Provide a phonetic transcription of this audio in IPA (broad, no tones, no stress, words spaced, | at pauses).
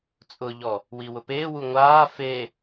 t͡sʼʊʎɔ | wiwʊpeː wuŋʷaː fe